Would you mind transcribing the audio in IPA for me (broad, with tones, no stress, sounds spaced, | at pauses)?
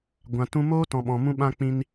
ɡʷ ã˨ t ũ˧ m oː˦ t ɔ̃˨ ɓ ɔ̃˨ m ũ˧ ɓ ã˧ k͡p ĩ˦ n